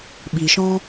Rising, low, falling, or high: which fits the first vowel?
low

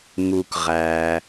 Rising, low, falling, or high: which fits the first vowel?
low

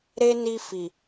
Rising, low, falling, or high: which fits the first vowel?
high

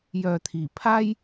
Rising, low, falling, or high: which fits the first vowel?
low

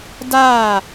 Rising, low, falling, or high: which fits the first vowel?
falling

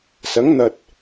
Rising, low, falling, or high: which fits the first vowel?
rising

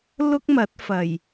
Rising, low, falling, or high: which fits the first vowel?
high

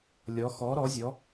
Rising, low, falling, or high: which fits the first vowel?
rising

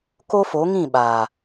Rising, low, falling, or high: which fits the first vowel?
high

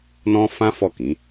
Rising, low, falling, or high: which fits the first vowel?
high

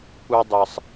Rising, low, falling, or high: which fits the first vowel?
high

